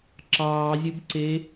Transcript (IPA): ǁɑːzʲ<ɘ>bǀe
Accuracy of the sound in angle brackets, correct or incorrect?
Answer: correct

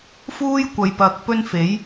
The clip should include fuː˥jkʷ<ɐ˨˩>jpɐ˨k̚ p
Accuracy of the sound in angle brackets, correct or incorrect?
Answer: incorrect: ɐ˨˧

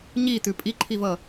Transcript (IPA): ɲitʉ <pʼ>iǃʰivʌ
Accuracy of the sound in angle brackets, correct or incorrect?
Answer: correct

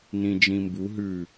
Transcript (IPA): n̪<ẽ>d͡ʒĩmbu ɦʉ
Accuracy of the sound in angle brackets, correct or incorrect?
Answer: incorrect: ĩ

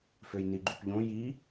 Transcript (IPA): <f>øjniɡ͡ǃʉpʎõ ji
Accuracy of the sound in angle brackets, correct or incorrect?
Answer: correct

